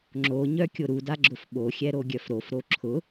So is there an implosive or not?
yes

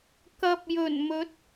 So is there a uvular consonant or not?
no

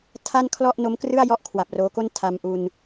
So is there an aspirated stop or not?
yes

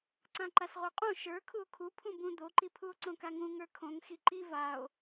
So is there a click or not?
yes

